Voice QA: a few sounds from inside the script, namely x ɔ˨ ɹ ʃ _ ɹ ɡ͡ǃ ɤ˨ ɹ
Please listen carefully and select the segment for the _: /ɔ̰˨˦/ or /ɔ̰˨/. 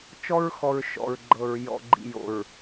ɔ̰˨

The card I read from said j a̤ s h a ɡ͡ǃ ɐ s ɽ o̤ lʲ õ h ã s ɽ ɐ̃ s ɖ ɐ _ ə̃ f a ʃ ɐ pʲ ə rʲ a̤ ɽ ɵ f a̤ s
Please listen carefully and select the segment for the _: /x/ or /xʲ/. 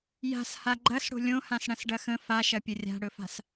x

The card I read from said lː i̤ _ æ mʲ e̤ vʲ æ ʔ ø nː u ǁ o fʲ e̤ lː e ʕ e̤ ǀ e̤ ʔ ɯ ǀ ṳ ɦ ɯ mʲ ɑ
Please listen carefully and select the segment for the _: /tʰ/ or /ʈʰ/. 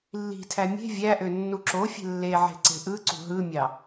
tʰ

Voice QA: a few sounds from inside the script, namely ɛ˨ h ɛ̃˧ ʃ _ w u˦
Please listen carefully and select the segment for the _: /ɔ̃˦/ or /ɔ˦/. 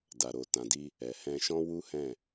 ɔ̃˦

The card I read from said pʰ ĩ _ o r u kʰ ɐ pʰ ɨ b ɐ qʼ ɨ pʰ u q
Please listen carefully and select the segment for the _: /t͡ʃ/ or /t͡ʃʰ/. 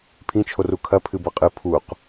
t͡ʃʰ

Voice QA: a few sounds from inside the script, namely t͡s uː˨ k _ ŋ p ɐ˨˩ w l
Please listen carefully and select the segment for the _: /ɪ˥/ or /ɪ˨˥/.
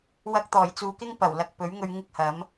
ɪ˥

